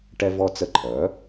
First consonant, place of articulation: retroflex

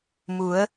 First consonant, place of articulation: labial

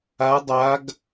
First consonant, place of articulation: alveolar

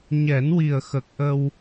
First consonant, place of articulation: palatal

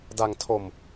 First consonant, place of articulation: alveolar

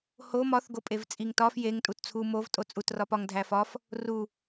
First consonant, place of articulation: glottal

